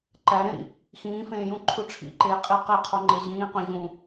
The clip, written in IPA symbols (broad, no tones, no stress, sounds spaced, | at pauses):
ǃ æ ɾ ẽ ɾ ḭ | x ĩː f ẽː j ũ ǃʰ u ʈ͡ʂʰ ḭ ǃ eː qʼ i q e qʰ o ŋ͡ǃ e ʑ ĩː q õ ʑ ũ